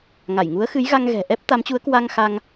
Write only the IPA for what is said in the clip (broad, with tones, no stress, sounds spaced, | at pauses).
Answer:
ŋ a˧˩ j ŋ u˨˦ ə̯ x ɨ˨˦ j ɣ a˧ ŋ ɣ ɛ̤˨˩ ʔ ɛ˦˥ p̚ t̪ a˨˦ m t͡ɕ u˨˦ ə̯ k w a˧ ŋ x a˧ ŋ